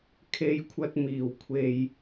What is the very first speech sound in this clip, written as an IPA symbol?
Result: kʰ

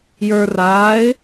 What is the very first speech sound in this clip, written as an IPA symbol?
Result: j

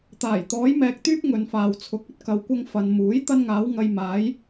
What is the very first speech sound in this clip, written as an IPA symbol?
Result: t̪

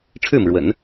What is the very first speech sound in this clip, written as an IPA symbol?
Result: ʈ͡ʂʰ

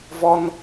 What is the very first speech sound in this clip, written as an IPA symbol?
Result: v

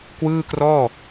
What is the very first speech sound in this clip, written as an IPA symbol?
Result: k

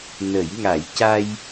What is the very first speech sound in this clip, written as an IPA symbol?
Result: n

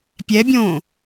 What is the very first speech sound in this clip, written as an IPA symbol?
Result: pʲ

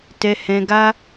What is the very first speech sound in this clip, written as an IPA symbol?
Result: t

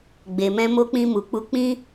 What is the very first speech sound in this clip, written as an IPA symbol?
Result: ɡ͡b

